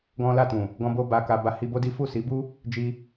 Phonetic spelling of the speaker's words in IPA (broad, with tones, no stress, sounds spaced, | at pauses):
ɡ ɔ̃˦ l a˦˨ t ũ˨ | ɡ ɔ̃˧ b o˧ b a˧ k a˧ b a˧ h i˧ b o˦ d i˦ f u˦˨ s i˨˦ b u˦ | d͡ʒ i˧